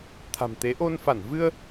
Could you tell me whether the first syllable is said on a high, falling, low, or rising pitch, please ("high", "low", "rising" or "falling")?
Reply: low